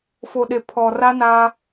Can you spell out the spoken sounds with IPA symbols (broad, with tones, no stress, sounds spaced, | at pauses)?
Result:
f o˨ ɗ e˨ pʰ ɔ˨ r a˦ n aː˦